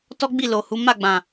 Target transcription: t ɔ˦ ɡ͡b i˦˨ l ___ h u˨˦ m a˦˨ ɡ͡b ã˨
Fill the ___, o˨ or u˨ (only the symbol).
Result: o˨